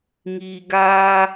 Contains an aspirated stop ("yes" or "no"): no